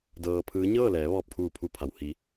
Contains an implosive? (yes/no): no